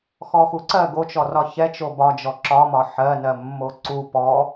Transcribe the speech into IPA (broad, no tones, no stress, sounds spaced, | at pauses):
x ɔ x u ǀ ɜ ɡ o t͡ʃ ɔ r ɒ ç ɛ t͡ʃ o b ɒ d͡ʒ ɔ ǁ ɒ m ɒ ħ ɜ n ɜ mː o ǀ u p ɔ